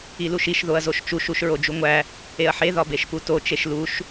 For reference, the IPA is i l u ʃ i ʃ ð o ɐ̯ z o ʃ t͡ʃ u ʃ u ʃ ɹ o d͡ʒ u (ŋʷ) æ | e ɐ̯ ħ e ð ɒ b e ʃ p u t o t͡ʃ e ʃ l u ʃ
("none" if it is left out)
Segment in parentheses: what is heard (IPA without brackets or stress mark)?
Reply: ŋʷ